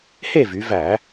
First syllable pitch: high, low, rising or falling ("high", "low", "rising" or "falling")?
falling